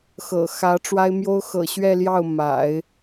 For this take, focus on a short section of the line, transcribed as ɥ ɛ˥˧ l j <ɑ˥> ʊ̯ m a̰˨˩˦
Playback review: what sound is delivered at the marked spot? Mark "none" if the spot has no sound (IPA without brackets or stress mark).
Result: ɑ˥˩